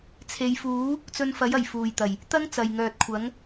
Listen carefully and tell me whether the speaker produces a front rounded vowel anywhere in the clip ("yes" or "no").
yes